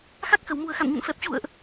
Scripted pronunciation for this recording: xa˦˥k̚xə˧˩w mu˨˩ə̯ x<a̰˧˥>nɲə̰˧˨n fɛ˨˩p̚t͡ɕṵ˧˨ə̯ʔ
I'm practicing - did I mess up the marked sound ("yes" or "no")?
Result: yes